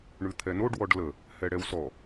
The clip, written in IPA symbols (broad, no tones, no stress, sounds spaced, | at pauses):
ɳ ʉ t̪ʰ ɛ n o ɖ w ɔ ɖ l ə | h ɛ ɽ ɛ w s ɔ